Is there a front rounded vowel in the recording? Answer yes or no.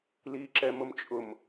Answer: no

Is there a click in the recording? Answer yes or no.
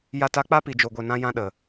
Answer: no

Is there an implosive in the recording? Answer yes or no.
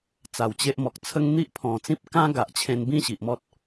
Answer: no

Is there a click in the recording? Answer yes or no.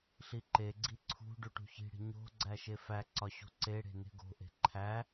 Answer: yes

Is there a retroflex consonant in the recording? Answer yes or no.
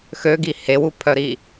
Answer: no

